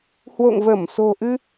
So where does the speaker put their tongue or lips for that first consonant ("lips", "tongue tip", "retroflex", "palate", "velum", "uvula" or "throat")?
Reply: throat